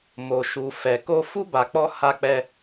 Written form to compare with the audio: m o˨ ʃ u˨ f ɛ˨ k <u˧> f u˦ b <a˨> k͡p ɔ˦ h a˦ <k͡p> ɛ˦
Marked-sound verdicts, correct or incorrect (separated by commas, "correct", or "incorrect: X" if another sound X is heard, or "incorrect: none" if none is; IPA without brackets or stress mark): incorrect: o˧, incorrect: a˧, correct